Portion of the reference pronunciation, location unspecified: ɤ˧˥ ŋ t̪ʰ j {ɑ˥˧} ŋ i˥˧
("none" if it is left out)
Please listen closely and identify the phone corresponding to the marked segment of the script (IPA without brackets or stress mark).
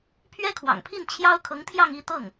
ɑ˥˧